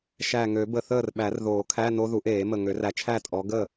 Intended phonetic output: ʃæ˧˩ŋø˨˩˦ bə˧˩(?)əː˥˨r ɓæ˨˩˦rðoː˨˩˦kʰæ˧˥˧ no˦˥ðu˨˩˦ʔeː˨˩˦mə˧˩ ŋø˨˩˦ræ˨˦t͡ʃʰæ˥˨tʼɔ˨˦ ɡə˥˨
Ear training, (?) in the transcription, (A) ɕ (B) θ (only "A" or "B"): B